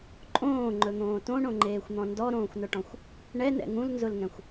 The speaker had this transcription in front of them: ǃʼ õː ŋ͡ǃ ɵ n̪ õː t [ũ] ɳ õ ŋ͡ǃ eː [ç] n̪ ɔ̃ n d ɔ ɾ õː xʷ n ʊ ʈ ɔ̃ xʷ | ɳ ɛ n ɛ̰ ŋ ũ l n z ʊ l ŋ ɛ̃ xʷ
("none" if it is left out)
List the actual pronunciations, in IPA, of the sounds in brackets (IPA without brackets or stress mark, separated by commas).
õ, xʷ